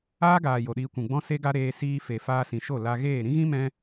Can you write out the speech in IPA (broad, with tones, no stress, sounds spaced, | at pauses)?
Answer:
aː˦ ɡ aː˨ j o˨ ɗ iː˧ kʷ ũ˨ ɡ͡b ɔ̃˦ s e˦ ɡ a˦ ɾ eː˧ s iː˧ f e˨ f aː˧ s ĩ˨ ʃ o˦˨ l a˧ ɣ eː˦˨ ɾ ĩ˦ ɣ ĩ˦ m ɛ̃˦